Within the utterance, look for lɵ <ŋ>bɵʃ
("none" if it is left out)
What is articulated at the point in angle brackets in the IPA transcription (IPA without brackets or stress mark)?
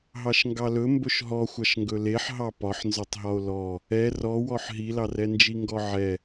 m